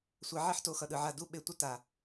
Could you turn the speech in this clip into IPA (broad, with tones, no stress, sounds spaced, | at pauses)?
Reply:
sʷ ɛ˨˦ ʕ i˦ ħ t o˧ x ʌ˨ ɗ ɯ˨ ʕ a˦˨ d u˦ ɓ e˧ tʷ ʌ˦ t a˨